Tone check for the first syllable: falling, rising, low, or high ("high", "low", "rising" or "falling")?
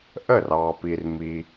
falling